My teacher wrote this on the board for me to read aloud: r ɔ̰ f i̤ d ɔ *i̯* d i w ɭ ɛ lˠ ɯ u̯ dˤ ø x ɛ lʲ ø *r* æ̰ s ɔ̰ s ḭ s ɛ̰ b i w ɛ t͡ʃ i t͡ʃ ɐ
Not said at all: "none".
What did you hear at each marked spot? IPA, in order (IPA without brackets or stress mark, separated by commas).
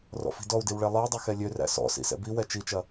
u̯, r